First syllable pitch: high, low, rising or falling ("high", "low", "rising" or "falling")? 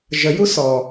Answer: low